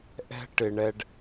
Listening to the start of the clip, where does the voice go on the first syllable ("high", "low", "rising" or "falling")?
high